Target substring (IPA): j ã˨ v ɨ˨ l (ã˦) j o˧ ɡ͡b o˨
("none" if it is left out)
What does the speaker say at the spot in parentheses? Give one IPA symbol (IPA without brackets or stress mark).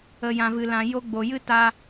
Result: ã˨